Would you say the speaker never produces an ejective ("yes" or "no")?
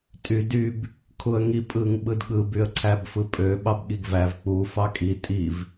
no